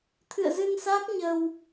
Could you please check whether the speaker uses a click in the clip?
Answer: no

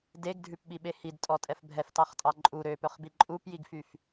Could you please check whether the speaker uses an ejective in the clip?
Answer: yes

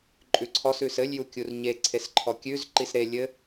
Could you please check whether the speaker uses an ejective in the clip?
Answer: yes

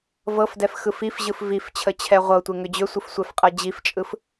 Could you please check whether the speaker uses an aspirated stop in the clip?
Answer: yes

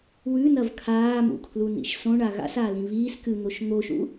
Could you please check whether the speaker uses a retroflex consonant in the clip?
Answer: yes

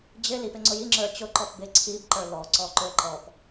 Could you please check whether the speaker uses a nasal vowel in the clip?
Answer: no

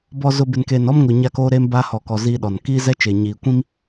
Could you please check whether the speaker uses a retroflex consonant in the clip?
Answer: no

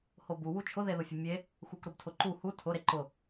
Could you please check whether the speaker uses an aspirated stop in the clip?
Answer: yes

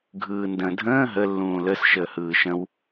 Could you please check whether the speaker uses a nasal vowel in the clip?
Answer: yes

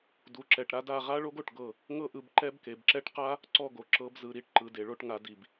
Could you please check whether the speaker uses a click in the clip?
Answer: yes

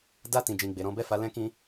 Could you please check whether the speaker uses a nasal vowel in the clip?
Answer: yes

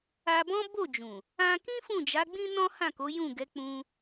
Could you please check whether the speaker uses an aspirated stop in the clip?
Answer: no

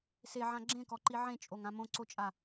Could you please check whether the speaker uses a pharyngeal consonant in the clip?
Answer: yes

